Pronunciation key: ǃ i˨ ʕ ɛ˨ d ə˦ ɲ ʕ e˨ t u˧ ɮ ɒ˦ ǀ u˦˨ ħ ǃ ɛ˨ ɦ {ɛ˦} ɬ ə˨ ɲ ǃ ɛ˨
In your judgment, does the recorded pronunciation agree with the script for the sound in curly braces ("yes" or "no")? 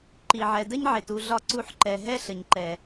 yes